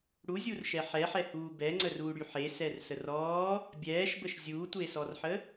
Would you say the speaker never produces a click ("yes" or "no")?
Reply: no